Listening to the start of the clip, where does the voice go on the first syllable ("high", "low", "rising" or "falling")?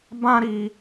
high